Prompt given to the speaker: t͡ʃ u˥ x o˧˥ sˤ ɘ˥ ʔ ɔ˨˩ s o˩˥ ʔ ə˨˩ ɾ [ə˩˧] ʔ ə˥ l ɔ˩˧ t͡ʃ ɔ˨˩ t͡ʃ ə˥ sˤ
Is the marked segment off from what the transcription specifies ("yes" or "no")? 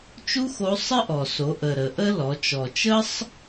no